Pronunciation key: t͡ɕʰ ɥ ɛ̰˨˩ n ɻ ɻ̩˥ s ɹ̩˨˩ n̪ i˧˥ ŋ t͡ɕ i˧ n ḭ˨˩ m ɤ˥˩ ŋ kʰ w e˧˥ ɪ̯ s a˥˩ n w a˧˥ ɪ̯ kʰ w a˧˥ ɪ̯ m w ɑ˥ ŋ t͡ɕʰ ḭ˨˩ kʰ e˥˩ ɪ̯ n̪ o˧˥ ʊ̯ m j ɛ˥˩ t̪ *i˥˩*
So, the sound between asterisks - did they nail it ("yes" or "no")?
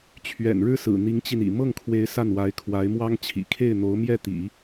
no